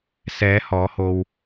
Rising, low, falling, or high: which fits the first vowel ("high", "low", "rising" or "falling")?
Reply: rising